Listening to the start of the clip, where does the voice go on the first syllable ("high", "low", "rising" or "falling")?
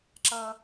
high